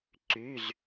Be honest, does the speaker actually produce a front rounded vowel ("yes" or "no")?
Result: yes